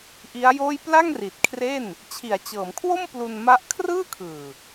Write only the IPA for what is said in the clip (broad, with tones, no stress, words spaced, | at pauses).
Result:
ʔi˦˥a̯joː˥˩j pla˥˩ŋri˨˩t̚kʰre˥˩n | t͡ɕʰi˩˦a̯t͡ɕɤː˩˦mkʰwo˥˩m plu˧nma˦˥ʔ kʰrɯː˥˩kʰɯː˨˩